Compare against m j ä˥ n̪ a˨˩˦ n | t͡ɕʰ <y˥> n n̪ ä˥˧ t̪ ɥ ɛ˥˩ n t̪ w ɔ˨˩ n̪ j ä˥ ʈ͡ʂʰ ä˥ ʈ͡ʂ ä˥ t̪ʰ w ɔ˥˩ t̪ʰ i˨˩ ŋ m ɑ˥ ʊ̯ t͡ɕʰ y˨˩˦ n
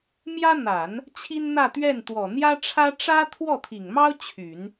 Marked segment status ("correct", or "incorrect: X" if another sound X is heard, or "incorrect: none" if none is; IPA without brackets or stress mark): incorrect: i˥